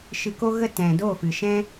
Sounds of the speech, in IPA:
ʃ ɨ˧ k o˦ ɣ ə˦ t ɛ̃˨ d o˦˨ f ɨ˨ ʃ ɛ̃˦

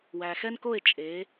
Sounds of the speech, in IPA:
w æ˨ x ɛ˥ n k o˥˧ e̯ t͡ʃʼ e˨˥

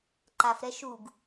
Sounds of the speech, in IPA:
ǃ a f ɾ ɛ ʃ u ɡ

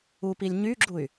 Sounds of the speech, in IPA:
u p i lʲ ɲ y ɡ͡ǁ u y̯

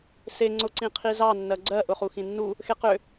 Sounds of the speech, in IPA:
s e ŋ͡ǀ ʊ ǀ ĩ qʰ i z ɑ nː ɜ ɡ͡ǀ ɜ ʔ ʊ χ u x ĩ nː u | x e q ø

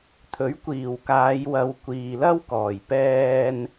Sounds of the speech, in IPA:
t̪ʰ ɵ˨˥ ɥ kʷ iː˨˩ w k aː˨˧ j w ɐ˨˧ w kʷ iː˨ l ɐ˥ w k ɔː˨˩ j p ɛː˧ n

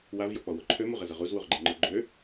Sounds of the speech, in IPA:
w a v j ɔ k͡p ɔ w o ǃʰ ø m u ʁ ɛ z ə ʁ u z w u ʁ ɡ͡ǃ ɛ ŋ͡ǃ œ ɡ͡ǃ ø

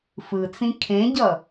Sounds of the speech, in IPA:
f ɯ t͡s ĩ kʰ ẽ ɟ ʌ

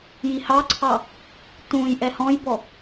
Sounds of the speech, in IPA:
j i h ɑ ǀʰ ɑ | t ũ j ʔ ɛ h ɔ̃ j b ɔ

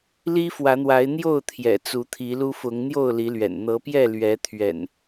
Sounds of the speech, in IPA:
l i˦ f w ä˨˦ n̪ w a˨˦ ɪ̯ n̪ j o˥˨ ʊ̯ t̪ʰ j ɛ̰˨˩ t͡s u˨˦ t̪ʰ i˨˦ l u˦ f ʊ˨˦ ŋ n̪ j o˥˨ ʊ̯ l i˨˦ l ɥ ɛ̰˨˩ n n̪ ɤ˨˦ p j ɛ˥˨ l ɥ ɛ˨˦ t̪ʰ ɥ ɛ̰˨˩ n

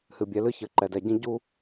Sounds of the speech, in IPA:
h ɨ˨ bʲ ɛ˨˦ l ɨ˦ ç ɘ˨ ǃ ɛ˨ d ɛ˨ ɟ ĩ˦ ɟ u˦

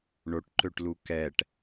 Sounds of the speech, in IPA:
ɳ o ʈ ǃ ø ʈ l u k ɛ ʈ

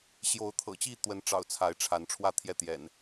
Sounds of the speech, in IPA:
ɕ j o˨˦ ʊ̯ t̪ʰ ɤ̰˨˩ t͡ɕ i˥˨ t̪ w ə˨˦ n ʈ͡ʂ ɑ̰˨˩ ʊ̯ t͡sʰ a˨˦ ɪ̯ ʈ͡ʂʰ a˨˦ n ʈ͡ʂʰ w ä˥˨ t̪ʰ j ɛ˥˨ t̪ j ɛ̰˨˩ n

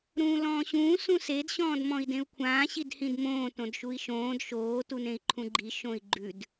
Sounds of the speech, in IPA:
ɾ ũː l ɔ̃ː ɕ ũː s ũ s e d ɕ ɔ̃ː d m ɔ̃ i̯ d ẽ u̯ kʷʰ ãː ɕ i d h ĩ d m õː t õ d ʃ u i̯ ʃ õː d ʃ oː t u n ẽ i̯ ǃʰ ũ ɡ͡ǃ i ʃ õ i̯ ɡ͡ǃ ʉ d

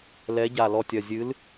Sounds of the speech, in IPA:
l ɛ˨˥ ɟ a˧˩ l ɔ˧˩ tʲ ɐ˧˩ zʲ ɨ˨˥ l

